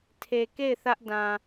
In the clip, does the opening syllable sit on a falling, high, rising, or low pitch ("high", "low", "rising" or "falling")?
low